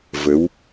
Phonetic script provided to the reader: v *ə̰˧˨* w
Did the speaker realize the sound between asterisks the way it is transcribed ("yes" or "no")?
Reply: no